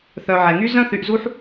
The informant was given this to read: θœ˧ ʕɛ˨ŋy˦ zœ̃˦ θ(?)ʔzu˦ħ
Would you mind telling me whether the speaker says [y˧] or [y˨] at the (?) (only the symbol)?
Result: y˧